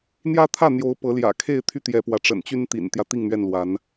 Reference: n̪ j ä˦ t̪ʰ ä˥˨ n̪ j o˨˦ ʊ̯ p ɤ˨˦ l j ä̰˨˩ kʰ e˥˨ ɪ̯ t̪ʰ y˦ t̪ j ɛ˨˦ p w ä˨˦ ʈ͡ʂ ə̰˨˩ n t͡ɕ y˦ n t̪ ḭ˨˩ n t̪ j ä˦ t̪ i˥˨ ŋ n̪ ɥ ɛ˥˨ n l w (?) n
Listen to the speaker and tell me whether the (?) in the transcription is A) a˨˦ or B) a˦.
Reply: A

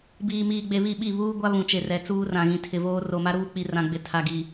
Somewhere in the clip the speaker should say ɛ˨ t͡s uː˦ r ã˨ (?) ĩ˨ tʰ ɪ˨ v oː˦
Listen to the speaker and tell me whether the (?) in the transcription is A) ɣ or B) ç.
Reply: A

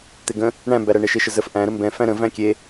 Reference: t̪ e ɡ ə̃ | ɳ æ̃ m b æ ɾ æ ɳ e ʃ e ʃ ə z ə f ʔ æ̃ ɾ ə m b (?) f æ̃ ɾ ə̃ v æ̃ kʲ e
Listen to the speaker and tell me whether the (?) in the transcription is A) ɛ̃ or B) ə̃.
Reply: A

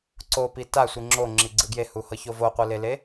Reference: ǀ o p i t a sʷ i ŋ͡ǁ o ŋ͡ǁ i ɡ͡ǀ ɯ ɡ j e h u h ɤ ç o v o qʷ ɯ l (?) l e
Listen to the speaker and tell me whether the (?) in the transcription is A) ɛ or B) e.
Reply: B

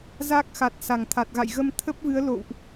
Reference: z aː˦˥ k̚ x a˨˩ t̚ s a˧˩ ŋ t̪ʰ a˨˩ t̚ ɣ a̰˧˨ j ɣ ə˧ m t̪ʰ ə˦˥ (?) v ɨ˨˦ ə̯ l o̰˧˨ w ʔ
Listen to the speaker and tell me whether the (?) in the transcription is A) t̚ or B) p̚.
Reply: B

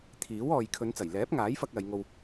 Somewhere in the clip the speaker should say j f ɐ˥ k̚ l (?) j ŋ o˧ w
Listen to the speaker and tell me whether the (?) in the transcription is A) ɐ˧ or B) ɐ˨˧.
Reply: B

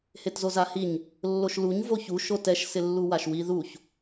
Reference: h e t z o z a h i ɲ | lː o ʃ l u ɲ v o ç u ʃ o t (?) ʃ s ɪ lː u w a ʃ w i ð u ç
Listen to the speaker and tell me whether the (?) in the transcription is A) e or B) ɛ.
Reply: B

